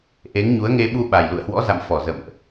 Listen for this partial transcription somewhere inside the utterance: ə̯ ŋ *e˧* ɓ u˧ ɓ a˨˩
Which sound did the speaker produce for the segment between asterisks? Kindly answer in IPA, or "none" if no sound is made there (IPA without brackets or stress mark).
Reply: e˧